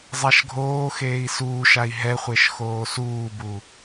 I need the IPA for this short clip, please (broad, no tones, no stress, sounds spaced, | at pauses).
zˤ a ʃ ɡʱ oː x eː i̯ s uː ʃ a i̯ ɦ ɛ χʷ e ʃ x oː s uː b u